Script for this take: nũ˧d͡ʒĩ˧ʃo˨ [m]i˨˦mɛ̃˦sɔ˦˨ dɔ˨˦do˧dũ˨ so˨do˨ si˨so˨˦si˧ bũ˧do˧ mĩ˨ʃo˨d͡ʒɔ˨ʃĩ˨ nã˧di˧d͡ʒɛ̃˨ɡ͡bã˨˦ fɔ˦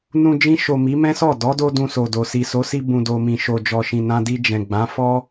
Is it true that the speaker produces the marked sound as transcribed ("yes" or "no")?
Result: yes